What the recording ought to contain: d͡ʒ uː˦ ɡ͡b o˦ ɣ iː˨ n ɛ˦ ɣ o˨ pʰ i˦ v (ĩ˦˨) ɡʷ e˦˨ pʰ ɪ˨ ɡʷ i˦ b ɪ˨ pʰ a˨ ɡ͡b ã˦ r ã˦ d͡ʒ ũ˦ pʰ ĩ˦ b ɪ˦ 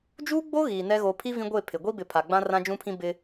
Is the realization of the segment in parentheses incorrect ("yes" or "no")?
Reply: yes